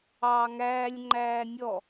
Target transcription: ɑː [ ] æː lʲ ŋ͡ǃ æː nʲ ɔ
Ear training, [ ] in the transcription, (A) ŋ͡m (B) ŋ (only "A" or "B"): B